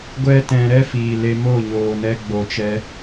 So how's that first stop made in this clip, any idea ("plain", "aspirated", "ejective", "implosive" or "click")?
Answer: plain